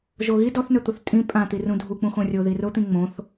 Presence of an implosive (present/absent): absent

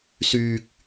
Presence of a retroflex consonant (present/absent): absent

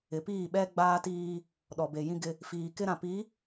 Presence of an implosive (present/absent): present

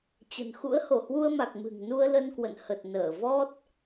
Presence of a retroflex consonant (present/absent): absent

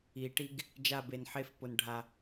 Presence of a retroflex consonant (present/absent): present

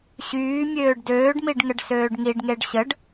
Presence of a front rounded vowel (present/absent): present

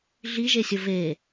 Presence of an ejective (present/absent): absent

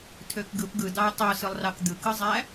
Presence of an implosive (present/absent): absent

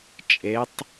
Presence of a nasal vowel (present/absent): absent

